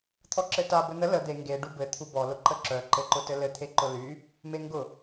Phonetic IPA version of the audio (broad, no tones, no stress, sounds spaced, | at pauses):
t̪ʰ ɔ ǁ ɘ t a b ɘ n̪ ə l ə d̪ e ŋ ɡ e ɖ u b ɘ t̪ʰ u b ɔ l ʊ ǃ ə ǁ œ ǃ ɘ ǃ ʊ t ɘ l ɘ t̪ʰ e ǃ ʊ l y | m e ŋ ɡ ʊ